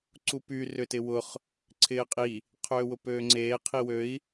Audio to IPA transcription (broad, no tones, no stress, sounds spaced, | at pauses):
ǀ u p y r ʏ t ɪ w ʊ χ | ǀʰ ɪː qʼ i | qʰ øː w ʊ p øː ŋ͡ǀ eː qʰ i w ø i̯